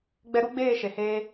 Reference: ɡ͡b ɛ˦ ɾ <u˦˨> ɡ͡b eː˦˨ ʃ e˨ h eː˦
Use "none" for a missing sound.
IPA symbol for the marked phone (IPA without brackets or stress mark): u˦